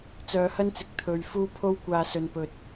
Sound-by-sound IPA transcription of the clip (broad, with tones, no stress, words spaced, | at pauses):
t͡sœː˨˧hɐ˥nt͡sɪ˨k̚ t̪ʰɵ˨ɥ fuː˥ pʰo˥wkʷaː˧ sɵ˨npɵ˨t̚